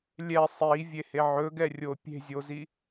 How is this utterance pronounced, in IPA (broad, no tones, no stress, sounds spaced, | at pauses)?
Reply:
lʲ ɛ sˤ i vʲ e h e ʕ ɵ ɡ ɛ rʲ o pʲ e̤ zʲ o z i